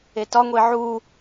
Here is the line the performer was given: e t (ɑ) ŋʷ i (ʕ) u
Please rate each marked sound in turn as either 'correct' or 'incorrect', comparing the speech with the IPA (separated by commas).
incorrect, correct